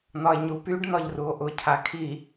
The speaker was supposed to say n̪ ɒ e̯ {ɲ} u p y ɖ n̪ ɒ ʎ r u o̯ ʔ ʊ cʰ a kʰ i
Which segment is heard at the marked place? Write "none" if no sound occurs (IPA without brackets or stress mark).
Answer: ɲ